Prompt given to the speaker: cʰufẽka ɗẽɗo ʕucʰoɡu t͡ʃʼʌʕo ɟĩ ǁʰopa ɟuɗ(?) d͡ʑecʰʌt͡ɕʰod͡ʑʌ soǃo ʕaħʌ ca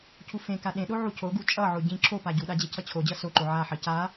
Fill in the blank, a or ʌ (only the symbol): a